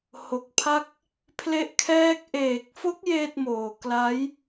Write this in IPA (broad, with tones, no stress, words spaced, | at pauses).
ho˨˩k̚pʰa˥˩k̚ | pʰle˥˩ʔkʰɛː˥˩k̚ ʔeː˨˩k̚fo˦˥k̚ jeː˥˩t̚moː˨˩ kla˦˥j